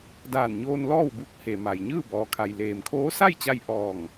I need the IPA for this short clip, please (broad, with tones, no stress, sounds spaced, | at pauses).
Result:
d aː˧˩ n ɲ oː˧ n l ɔː˥˨ w b u˧˥ k̚ h e˩ m a˩ j ɲ ɯː˥˨ b ɔː˩ kʰ a˩ j l eː˩ m kʰ oː˧˥ s a˥˨ j t͡ɕ a˧ j ʔ ɔː˧˩ ŋ